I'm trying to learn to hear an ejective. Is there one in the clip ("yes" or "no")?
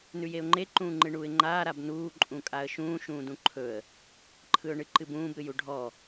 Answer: yes